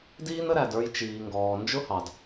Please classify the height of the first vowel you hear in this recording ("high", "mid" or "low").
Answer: high